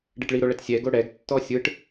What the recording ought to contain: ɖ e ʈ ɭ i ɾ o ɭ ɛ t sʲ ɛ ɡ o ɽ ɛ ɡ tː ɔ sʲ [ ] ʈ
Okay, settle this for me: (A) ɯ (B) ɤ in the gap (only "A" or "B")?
A